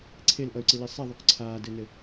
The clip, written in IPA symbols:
ǀʰelʔʌy̯ǀili sˤiðˤuk ǀʰaːdɘnɘ

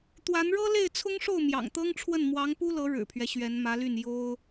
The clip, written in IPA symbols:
t̪wa˧˥n ɻɤ˥le˥˩ɪ̯t͡sʰʊ˥ŋʂo˥˩ʊ̯ mjɑ̰˨˩ŋt̪ɤ˥ŋʈ͡ʂʰwə˥˩n mwɑ˧˥ŋpu˥lɤ˧˥ ɻɻ̩˨˩pʰɥɛ˦ ɕɥɛ˧˥nmä˧˥ly˥˩n jo˥ʊ̯

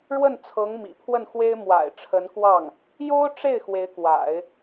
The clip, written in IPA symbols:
ɻwə˥˩n t͡sʰɤ˧˥ŋmḭ˨˩pʰwə˥˩nxwe˥ɪ̯ mwa̰˨˩ɪ̯ʈ͡ʂʰə˧˥nkwɑ˥˩ŋ | jo˥ʊ̯ʈ͡ʂe˥˩ɪ̯ xwe˧˥ɪ̯kwa̰˨˩˦ɪ̯

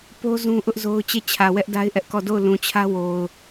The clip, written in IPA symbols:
po˦ zũ˦ʔʊ˦ʔzo˦ʊ̯ t͡ɕe˦˨t͡ɕʰä˨ wɛ˦ʔda˦ɪ̯ʔɛ˦ʔkɔ˦˨ do˦˨ʊ̯ lũ˨t͡ɕʰä˦ wo˨ʊ̯

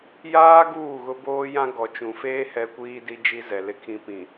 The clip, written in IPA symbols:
jaː˦ ɡuː˦˨ɣʊ˦boː˦ jã˦ ɡɔ˨t͡ʃũ˨feː˦ hɛ˦kʷiː˦di˦ d͡ʒi˦zɛ˨ lɪ˦ kʰĩ˦ pĩ˨

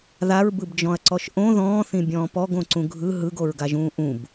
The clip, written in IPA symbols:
ðaɹbɯbd͡ʒɔ̃ɐ̯ǀɔʃ ʔõ ðɔ̃ːθĩbʲɔ̃ː pɔɡõǀũ ɡʱɯ ɦɯɡoɹɡaʒũː ʔũb

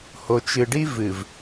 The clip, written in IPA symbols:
ho˨t͡ʃɨ˨ɖi˦ vɨ˨v

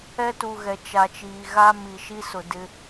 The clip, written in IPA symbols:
ɛ˦tu˨ɣɛ˨ t͡ʃa˨t͡ʃiː˨ɣa˦ mi˨ʃi˦sʊ˨ dɪ˦

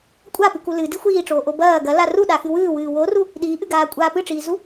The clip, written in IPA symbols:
kʷʼapɨku lɨdi xʷiːʈ͡ʂoːʔo bɐː ɡɐla ruɗaxɨ wɨːwɨː woru | ɗiːʔɨɡaːkʷʼaː pɨʈ͡ʂiːzu

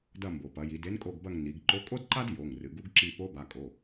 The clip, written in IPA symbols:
dɐ˦˨mbo˩pɐ˩˧ji˩˧d e˧˥nkʼo˦˨ɡbɐ˦˨ŋ ni˩˧ɡǃo˧˥ kʼo˥dǃa˥d jo˩˧˩ŋrɨ˩˧ɡu˧˥ɡǁi˦˨ po˧˥ba˩˧˩kʼo˩˧˩

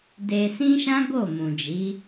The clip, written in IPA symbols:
de˧ sĩ˦ʃã˦ ɡo˦˨mũ˨ d͡ʒi˨˦

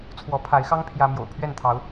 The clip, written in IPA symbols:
t͡sʰwɔ˨˦pʰa˨˦ɪ̯xɑ˦ŋ pʰjä˦ mjo̰˨˩ʊ̯ pʰɥɛ˥˨nt̪ʰɑ˨˦ʊ̯

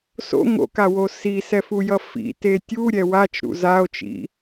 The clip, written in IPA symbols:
so̰ ŋo̰kawo sisɛfujʌ fḭte tʲuɾʲɛ wat͡ʃɾṵ zao̯t͡ʃḭ

